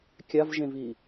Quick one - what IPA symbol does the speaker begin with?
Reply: kʲ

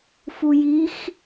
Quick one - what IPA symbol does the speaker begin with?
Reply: f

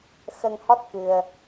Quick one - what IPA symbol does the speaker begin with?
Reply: x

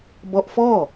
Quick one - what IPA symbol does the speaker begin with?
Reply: b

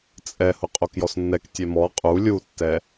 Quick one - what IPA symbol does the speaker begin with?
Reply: t͡sʼ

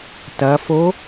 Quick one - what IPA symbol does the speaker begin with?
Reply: t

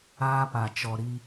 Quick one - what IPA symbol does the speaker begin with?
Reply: aː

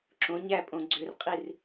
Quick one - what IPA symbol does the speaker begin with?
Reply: ǁ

